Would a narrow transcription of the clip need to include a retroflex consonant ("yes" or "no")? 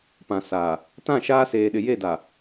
no